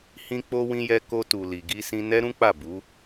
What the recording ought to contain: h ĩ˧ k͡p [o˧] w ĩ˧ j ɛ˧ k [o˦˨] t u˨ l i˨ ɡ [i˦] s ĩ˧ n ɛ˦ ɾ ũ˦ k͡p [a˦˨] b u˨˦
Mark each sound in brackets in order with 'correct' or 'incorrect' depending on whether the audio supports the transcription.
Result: correct, incorrect, incorrect, correct

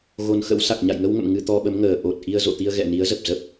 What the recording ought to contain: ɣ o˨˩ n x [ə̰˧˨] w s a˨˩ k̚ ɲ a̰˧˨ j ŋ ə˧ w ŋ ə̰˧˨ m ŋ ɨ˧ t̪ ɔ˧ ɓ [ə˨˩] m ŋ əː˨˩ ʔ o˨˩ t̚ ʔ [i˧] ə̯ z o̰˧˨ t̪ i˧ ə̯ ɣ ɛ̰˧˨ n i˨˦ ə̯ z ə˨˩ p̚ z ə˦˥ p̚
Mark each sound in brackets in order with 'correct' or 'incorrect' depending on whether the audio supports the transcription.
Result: incorrect, incorrect, correct

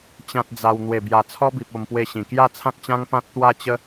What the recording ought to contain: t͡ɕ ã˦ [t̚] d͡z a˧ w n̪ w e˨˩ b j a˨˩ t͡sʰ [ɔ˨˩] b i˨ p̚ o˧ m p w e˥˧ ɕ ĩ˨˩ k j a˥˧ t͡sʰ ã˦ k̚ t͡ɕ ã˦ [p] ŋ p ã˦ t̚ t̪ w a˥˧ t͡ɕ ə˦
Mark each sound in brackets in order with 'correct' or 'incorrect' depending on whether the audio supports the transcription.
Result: correct, incorrect, incorrect

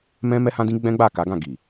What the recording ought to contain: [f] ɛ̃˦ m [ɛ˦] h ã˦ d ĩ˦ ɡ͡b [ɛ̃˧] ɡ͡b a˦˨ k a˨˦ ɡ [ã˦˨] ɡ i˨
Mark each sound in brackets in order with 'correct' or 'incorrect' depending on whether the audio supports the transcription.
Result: incorrect, correct, incorrect, correct

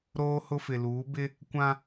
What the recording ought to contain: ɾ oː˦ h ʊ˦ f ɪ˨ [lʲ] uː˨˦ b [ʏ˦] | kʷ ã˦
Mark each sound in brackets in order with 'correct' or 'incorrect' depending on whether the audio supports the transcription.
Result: incorrect, incorrect

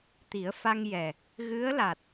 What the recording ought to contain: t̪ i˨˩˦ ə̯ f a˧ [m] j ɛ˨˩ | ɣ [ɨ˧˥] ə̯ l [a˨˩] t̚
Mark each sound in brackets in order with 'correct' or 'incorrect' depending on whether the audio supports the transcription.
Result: incorrect, correct, correct

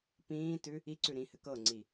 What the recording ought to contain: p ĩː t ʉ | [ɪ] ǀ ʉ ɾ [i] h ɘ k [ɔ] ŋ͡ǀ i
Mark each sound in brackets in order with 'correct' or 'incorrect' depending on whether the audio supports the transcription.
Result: incorrect, incorrect, incorrect

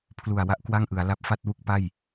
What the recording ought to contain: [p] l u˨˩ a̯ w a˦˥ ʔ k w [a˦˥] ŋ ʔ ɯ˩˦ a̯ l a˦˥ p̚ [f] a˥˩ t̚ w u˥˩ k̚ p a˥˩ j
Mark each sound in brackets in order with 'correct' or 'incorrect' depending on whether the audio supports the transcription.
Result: incorrect, incorrect, correct

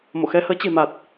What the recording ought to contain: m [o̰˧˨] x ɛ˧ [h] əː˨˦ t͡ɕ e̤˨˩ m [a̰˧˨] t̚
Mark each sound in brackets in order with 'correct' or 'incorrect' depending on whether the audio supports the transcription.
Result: correct, correct, incorrect

